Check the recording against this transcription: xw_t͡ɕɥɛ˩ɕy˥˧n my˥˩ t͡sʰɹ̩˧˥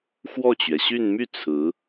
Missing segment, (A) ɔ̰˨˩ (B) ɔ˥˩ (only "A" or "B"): B